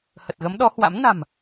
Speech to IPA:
hə˨˩t̚ɣə˨˦mɗɔ˨˦ hwa̰˧˥m na̤˨˩m

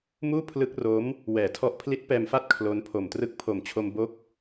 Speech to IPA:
muː˥˩ pʰlɯ˦˥k̚ro˦˥m | wɛː˨˩tʰɔ˦˥ʔ pʰli˦˥t̚pɛː˧mfa˥˩t̚ kʰlo˦˥n pʰo˨˩mtrɯ˦˥k̚ pʰo˨˩mt͡ɕʰo˧m bo˦˥k̚

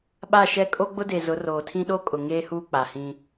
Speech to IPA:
ɓa˦˨ʃɛ˦ kʼo˦ɡ͡bʊ˦de˨ zʊ˨˦roː˨tʰĩ˦ ɗo˦kʼʊ˨ ŋeː˦huː˦ k͡pa˨hĩ˦

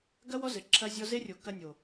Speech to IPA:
ɡɐ˦wɔ˦zɘ˨ ǁʰɐ˦zʲɔ˦ ze˦rʲo˨˦ kɐ˦nʲo˨

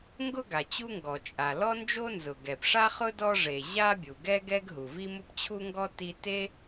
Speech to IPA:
ŋɡʊ˥ ɡa˩t͡ɕu˥ŋɡɔ˩ t͡ʃʼa˩ lɔ˥nd͡ʒo˥nzʊ˩ ɡɛ˩pʂa˥χʊ˥ dɔ˥ ʐe˩ ʑa˥bʲu˩ɡɛ˥ ɡɛ˥ɡɦu˩vi˥mʊ˥p t͡ɕʰu˥ŋɡɔ˥ ti˥ te˥

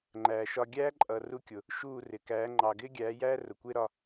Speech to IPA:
ŋ͡ǃæː˨ʃɒ˧ ɡʲæː˦ǃʼʌ˨ ru˧kʲʊ˨ | ʃuː˦˨rɪ˨kæː˨˦ ŋ͡ǃɑ˨ɡɪː˦ɡʲæː˨˦jæː˦ rʊ˨kʷɪː˦ɾɒ˧

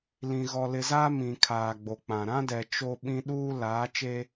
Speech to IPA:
lĩ˨ ɣɔ˨lɪ˨zaː˦ mĩ˨kʰaː˨ ɡ͡bo˨k͡pã˨ ɾã˦dɛ˨ t͡ʃo˦ɓĩ˦ ɗuː˦ laː˨˦t͡ʃe˦

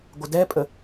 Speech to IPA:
ɡʷədɛpʼə

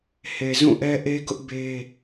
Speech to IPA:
he˨ zũ˦˨ʔɛ˦ʔe˦ɡʊ˦ʔ be˦

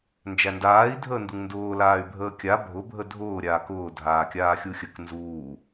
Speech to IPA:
nd͡ʒændaːi̯ dʱəːnduŋndʊː laːy̯bʱəːkʲa bʱʊ bʱədʱʊː ɾʲaːkʊː dʱaːkʲaːxʲuxʲək nzuː

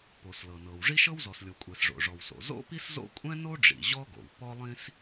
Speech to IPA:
po˩slɤ˩nɤ˩w ʐi˥ʃɤ˥wzɔ˩slʲo˩ kʷʼɛ˩sʐo̰˩ʐɔ˩wso̰˩ zo̰˥pi˥szo̰˥ kʷʼɛ̃˥no˥ɖ͡ʐḭ˩ ʑɔ˥ɡo̰˩w pɔ˥lˠĩ˥s

